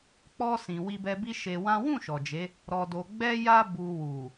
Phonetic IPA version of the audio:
k͡p ɔ˦ s ĩ˧ w i˦ b ɛ˦ b i˦ ʃ e˧ w ã˦ w ũ˦˨ ʃ ɔ˨ d͡ʒ e˨˦ | ɾ ɔ˧ d o˧ ɡ͡b ɛ˦ j a˦ b u˧ w u˨

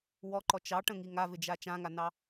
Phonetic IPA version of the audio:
w ɔ ǃ ɔ t͡ʃ ɑ ʈ ə̃ ŋ i ŋ a v ɪ d͡ʒ a t͡ʃ ã ŋ a n ɑ

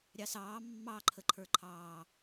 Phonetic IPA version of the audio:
ɾʲ ɑ s ɑː mː ɑ ǃʰ ə ǃʰ ə˞ ǃʰ ɑː

